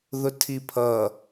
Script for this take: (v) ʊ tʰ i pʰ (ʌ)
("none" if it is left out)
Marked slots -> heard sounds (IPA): ð, ʌ

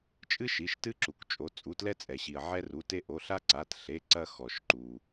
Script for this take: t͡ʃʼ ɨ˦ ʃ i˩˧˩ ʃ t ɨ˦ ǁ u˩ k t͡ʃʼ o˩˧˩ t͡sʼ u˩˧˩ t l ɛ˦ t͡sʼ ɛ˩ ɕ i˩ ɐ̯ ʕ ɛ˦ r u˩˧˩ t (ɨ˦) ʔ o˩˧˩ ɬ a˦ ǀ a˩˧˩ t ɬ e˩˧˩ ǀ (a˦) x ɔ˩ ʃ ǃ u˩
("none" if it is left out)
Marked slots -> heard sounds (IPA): e˦, ɐ˦

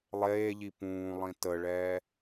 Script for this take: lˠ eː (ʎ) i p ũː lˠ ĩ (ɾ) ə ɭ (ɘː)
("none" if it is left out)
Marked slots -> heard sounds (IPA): ʎ, t, ɛː

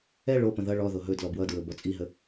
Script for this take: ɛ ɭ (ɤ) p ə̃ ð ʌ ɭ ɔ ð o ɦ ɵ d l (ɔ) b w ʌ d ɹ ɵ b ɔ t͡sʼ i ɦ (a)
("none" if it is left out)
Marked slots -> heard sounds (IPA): o, ɔ, ə

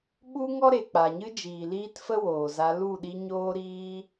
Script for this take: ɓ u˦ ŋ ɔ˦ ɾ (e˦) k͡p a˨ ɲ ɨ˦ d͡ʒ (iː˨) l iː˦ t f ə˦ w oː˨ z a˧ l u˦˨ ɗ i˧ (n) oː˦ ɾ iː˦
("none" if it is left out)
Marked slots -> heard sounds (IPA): e˨, iː˨, ɲ

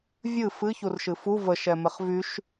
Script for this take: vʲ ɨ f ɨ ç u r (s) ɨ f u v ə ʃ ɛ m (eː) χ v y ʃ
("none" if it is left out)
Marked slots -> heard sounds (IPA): ʃ, e

